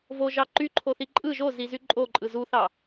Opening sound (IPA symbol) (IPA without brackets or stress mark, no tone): v